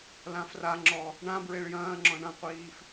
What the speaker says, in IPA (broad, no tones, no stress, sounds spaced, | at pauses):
l ã f r a ŋ͡ǁ ɔ | ɳ ã b ɹ e ɭ j ɐ̃ː ŋ͡ǁ ɔ̃ ɳ ɐ̃ qʷ iː f